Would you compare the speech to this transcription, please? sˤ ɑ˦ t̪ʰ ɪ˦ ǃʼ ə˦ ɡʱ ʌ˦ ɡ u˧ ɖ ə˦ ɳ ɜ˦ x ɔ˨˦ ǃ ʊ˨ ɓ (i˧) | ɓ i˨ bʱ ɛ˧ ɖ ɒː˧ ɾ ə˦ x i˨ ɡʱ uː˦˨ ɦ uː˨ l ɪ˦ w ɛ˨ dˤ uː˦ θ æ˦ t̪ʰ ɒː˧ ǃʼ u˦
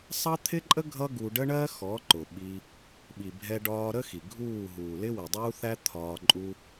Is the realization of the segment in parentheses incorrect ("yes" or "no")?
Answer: no